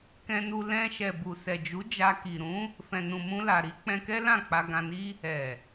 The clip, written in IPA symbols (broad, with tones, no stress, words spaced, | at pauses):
kɛ̃˧nu˧ lɛ̃˧ ʃɛ˨ bu˨ sɛ˨d͡ʒu˨˦ d͡ʒa˧ki˨ ɾũ˨˦ | fɛ̃˨nũ˨ mũ˧la˨ɾi˨˦ k͡pɛ̃˧kɛ˦ lã˦˨ k͡pa˧ɡã˧ni˦ | ɛ˨